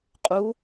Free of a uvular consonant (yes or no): no